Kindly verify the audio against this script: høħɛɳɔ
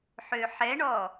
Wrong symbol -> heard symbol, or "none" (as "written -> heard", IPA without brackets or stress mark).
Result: h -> ħ